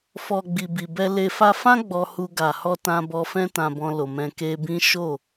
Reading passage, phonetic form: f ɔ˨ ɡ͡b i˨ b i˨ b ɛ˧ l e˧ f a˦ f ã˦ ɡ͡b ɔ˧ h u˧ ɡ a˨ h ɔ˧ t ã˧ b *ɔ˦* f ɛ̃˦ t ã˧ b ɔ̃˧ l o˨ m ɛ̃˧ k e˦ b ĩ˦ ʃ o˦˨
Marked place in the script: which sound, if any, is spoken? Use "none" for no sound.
ɔ˧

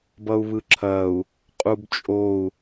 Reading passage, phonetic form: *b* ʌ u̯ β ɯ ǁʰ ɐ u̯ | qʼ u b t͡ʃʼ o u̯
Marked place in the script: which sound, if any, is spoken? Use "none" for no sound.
b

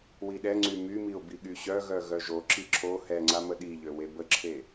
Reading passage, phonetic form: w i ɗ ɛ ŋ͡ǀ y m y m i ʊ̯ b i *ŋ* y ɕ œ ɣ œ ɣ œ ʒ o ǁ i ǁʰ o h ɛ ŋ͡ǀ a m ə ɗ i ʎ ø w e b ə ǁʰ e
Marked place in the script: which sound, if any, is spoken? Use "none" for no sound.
ɠ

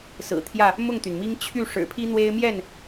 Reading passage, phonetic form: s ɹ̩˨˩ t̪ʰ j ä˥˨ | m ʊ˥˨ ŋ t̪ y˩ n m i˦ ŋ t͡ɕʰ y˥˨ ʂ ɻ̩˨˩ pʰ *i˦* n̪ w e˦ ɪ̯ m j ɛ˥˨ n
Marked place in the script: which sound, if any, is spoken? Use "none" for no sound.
i˦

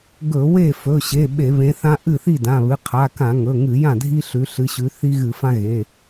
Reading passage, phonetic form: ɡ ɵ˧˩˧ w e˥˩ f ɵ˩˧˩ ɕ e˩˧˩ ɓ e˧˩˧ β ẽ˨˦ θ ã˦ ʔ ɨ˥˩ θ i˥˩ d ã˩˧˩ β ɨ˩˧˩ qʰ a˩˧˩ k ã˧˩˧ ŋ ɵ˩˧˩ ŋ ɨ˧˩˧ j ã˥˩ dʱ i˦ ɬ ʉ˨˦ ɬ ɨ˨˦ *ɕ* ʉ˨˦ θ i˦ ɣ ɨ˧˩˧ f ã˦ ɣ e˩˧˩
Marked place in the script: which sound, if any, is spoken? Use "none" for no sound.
ɕ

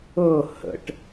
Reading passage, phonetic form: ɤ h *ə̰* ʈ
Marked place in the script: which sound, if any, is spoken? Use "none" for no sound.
ə̰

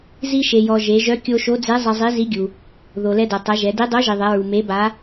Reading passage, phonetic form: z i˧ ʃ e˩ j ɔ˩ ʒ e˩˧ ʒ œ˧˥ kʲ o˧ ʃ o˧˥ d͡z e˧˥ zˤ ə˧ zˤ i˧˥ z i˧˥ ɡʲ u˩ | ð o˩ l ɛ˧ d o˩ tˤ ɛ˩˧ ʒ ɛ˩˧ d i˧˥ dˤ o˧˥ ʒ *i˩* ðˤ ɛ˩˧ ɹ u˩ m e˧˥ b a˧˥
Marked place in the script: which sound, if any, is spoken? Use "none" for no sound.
i˩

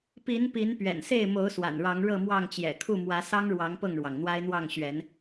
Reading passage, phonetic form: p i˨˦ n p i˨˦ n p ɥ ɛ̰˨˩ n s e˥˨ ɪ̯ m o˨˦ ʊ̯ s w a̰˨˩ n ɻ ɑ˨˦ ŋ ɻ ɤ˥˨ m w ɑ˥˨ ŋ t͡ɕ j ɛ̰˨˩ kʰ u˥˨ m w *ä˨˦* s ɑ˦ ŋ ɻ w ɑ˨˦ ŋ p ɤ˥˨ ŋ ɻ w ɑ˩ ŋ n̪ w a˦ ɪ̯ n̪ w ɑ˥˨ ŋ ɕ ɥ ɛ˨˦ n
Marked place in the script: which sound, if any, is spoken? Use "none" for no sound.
ä˨˦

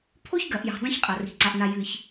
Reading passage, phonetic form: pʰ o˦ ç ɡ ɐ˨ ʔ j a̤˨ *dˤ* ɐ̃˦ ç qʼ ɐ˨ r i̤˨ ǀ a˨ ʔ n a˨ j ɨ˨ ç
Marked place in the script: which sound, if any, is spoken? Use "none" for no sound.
dˤ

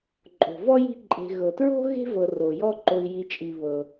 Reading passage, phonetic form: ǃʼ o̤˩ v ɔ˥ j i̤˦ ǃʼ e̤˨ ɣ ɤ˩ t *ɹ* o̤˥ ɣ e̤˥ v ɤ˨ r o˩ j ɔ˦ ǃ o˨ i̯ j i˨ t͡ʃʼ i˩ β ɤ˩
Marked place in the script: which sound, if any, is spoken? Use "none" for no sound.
ɹ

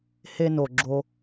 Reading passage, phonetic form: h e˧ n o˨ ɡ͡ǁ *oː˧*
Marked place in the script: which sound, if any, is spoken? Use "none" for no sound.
o˧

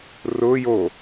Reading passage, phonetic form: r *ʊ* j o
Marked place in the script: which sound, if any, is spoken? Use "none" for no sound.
ʊ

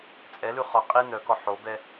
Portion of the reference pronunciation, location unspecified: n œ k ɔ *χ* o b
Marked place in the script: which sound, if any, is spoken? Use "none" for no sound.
ħ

